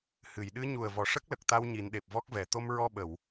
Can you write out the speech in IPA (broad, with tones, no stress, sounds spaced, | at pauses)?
h ɨ˨˩˨ j ɗ ɨ˧˥ ɲ u˨˩ ə̯ v ɔ˨˩ ʂ ə˦˥ k̚ l ə˨˩ k̚ t̪ a˧ w ɲ i˨˩˦ n ɗ e˨˩ p̚ v ɔ˦˥ k̚ v ɛ˨˩˨ t̪ o˧ m ɹ ɔ˧ ɓ ə˨˩˨ w